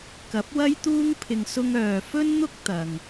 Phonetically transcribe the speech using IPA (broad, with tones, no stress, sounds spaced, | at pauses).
k ɐ˨˥ p̚ w ɐ˥ j t̪ uː˥ ŋ pʰ ɪ˧ ŋ s ʊ˥ ŋ œː˧ f ɵ˥ n n̪ ʊ˥ k̚ t̪ ɐ˨ ŋ